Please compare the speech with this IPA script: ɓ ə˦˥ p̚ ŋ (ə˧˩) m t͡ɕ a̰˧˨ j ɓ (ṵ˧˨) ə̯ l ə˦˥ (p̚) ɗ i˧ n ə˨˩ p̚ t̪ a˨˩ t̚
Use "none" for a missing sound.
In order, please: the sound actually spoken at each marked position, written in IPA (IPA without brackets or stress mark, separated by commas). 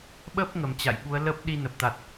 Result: ə˧˩, u˨˦, p̚